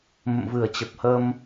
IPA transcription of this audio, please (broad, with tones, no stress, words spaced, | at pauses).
mə̰˧˨mvɨ˧˩ə̯t͡ɕə˨˩p̚hə˧m